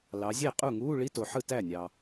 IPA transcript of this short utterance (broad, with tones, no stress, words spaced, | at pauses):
lɑ˩˧zʲe˥˩ qʼu˥˩ŋu˧˥˧ ɭi˧˥˧to˩ħɯ˥˩ tæ˥˩nʲɑ˩